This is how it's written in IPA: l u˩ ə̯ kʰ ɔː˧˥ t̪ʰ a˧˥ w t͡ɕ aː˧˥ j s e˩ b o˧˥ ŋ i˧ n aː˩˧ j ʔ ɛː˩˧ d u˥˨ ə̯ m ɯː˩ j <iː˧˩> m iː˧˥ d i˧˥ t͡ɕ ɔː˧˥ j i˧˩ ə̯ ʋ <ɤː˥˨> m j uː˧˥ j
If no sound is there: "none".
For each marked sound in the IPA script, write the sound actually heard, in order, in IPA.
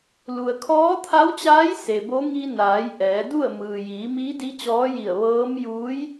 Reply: iː˩˧, ɤː˧˥

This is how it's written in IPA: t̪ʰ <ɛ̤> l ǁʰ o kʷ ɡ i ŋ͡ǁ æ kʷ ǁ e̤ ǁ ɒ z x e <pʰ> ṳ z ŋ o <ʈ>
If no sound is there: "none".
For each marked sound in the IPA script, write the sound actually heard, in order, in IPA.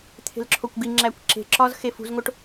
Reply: e̤, f, ʈ

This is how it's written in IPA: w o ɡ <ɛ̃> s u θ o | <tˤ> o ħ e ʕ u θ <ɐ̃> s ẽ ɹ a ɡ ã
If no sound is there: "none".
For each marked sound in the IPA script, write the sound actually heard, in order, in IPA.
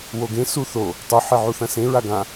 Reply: ẽ, tˤ, ɐ̃

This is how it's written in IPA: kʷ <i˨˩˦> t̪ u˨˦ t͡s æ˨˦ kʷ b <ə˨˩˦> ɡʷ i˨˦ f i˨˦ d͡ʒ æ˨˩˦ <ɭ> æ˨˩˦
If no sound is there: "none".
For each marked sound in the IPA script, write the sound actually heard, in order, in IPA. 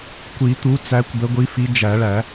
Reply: i˨˩˦, ə˨˦, ɭ

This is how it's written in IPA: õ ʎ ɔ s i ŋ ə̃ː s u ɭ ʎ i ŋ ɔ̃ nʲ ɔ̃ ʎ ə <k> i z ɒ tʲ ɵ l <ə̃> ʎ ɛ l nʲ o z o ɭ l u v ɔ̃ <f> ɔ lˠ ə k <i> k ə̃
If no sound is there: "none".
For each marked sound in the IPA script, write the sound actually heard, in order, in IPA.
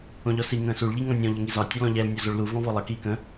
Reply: ŋ, ɔ̃, v, iː

